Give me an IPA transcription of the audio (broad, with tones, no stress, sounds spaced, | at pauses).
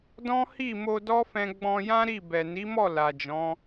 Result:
d ɔ̃˦ h i˦˨ m o˧ d ɔ˦ f ɛ̃˧ ɡ͡b ɔ̃˧ j ã˦ ɾ i˦˨ b ɛ˨ n i˨˦ m ɔ˦˨ l a˨ d͡ʒ ɔ̃˨˦